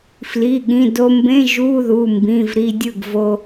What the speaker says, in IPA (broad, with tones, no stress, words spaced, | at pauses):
fli˩˧˩ɠĩ˩˧˩do˧mbẽ˧˥˧ ʒu˧˥˧ðu˩˧˩mbĩ˩˧˩vɾi˧ dʲɯ˥˩ɡvo˧